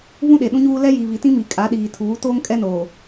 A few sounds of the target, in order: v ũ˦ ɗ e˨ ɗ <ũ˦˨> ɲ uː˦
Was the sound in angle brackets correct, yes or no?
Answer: no